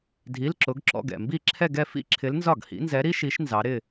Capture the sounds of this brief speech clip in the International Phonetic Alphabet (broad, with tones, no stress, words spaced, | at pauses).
dʱi˧˥˧lǁʊ˧˥ɡǁɔ̰˧˥˧ɡ ɛ̰˨˩mbi˥˩ǁʰɛ˥˧ɡɛ˥˧ fḭ˥ǁʰɪ˧˥lnzɒ˥˩ɡ hḭ˧˥nzɛ˧˥ɾi˥ʃi˧˥ʃ nzɑ˧˥ɾɪ˥˧